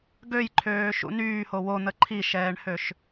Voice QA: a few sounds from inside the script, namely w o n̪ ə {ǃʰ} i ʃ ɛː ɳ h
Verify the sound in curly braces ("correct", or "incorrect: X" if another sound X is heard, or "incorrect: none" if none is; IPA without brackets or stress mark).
correct